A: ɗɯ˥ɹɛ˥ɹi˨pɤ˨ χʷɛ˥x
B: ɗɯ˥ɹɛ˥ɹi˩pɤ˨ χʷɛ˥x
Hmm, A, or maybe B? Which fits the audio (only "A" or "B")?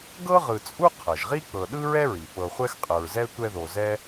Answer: B